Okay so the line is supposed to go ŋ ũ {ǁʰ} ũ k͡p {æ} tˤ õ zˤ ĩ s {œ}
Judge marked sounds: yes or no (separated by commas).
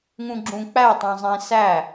no, yes, no